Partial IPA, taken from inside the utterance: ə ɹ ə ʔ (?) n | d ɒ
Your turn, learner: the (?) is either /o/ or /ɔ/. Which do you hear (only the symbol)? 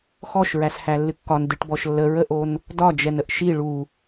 o